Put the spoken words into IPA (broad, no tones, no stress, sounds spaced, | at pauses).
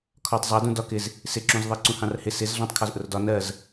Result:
kʰ ɒ tˤ zˤ ɜ d ũ d ɒ k ɪ z | s ɪ ǁ ũ z ðˤ ɜ ǀ ũ h ɑ̃ r h ɪ s ɪ z ɮ ɑ̃ tˤ kʰ ɒ z ʔ ʊ r d ɒ n ɜ z